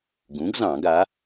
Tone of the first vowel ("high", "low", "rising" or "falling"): rising